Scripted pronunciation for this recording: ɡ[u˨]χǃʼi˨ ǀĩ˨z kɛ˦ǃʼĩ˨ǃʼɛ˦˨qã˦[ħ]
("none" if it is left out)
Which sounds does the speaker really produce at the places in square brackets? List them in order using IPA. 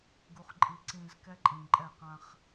u˨, χ

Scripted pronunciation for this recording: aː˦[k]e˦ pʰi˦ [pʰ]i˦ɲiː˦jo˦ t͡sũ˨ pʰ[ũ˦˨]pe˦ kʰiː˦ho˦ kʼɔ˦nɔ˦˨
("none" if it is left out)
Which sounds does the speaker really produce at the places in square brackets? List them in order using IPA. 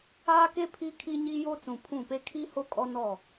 k, kʰ, ũ˦˨

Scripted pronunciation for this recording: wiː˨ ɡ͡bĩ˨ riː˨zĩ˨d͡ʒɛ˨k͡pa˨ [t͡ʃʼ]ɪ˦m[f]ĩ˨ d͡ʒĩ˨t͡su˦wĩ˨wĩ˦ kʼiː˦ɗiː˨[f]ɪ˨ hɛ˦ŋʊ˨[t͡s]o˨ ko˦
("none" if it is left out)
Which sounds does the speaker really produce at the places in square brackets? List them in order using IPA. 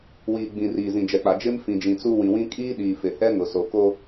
d͡ʒ, f, f, s

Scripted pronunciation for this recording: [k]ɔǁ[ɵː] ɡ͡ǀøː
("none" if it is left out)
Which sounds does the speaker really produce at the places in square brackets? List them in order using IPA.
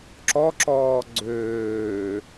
ǁ, ɔː

